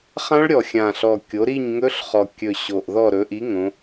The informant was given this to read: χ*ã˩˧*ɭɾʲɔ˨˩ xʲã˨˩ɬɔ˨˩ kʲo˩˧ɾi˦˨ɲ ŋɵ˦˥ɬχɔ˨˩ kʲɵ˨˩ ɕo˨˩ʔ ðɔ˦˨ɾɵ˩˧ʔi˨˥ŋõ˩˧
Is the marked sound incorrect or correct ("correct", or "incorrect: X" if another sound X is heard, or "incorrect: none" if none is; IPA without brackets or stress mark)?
incorrect: ã˦˥